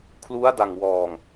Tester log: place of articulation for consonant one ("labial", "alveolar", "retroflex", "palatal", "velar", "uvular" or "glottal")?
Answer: velar